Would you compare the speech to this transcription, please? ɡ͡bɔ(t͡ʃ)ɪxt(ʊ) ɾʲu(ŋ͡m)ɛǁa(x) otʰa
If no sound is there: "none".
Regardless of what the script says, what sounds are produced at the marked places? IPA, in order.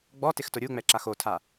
t, ʊ, ŋ͡m, x

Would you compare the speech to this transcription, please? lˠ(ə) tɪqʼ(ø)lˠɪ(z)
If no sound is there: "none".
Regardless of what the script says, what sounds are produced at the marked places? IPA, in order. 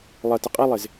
ə, e, z

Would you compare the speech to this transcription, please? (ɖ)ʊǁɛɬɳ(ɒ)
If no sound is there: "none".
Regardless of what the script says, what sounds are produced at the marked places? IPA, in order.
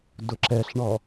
d, ɒ

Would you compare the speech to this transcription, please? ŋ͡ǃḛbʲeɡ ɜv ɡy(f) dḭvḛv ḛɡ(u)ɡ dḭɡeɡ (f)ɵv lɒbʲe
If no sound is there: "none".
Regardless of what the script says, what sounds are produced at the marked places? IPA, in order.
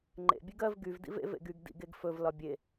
v, y, f

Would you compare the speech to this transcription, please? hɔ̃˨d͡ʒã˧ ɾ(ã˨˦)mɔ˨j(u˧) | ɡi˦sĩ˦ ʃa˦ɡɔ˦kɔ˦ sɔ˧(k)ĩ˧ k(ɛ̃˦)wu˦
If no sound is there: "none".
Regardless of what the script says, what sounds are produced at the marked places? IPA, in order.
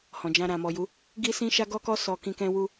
ã˨, u˨˦, k, ɛ̃˦

